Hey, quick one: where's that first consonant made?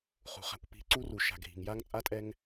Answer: uvula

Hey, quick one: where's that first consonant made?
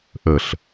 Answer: throat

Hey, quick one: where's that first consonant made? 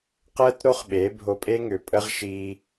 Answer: uvula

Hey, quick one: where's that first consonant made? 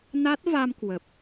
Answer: tongue tip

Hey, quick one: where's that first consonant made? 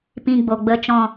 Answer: lips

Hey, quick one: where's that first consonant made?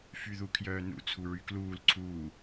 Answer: lips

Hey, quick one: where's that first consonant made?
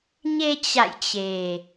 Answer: palate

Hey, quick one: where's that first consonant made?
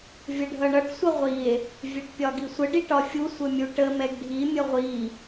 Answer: lips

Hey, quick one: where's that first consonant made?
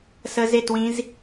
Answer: tongue tip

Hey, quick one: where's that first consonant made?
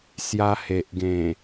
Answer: tongue tip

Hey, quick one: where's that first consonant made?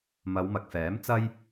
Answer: lips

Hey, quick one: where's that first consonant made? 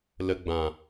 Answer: tongue tip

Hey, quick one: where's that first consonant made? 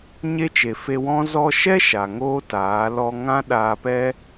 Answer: palate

